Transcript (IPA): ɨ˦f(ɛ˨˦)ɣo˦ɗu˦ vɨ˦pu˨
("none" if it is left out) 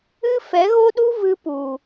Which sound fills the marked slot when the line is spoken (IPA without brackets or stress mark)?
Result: ɛ˨˦